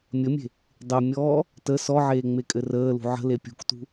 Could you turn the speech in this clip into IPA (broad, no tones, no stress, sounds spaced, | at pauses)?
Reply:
mʲ ə mʲ e̤ | dˤ e mʲ ɔː | t ə s ɔ ʕ eː ŋ͡m e kʼ ɘ r əː l ṳ ʕ ə̤ l e pʲ ṳ k t ṳ